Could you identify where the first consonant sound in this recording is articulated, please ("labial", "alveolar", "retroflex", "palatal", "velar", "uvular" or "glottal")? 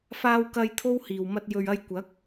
labial